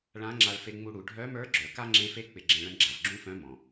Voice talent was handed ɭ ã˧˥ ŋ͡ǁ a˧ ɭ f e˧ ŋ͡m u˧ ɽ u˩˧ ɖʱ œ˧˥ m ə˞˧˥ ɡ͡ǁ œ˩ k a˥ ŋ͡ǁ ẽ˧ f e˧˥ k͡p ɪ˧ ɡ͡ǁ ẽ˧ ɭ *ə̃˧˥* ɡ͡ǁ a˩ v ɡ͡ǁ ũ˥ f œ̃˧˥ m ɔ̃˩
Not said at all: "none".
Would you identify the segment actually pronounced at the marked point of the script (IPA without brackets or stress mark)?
ə̃˧˥